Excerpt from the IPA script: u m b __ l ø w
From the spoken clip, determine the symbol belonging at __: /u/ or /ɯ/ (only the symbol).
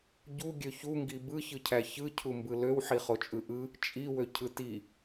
ɯ